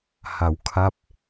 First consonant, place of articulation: glottal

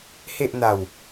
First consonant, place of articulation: glottal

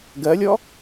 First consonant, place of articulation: velar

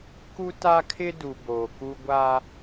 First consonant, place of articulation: velar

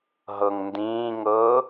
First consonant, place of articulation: glottal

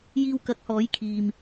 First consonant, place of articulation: palatal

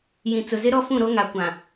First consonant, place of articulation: palatal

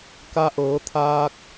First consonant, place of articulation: velar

